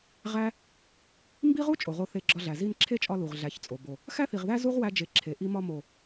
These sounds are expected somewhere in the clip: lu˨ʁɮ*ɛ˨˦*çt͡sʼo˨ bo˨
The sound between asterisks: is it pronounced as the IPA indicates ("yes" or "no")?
no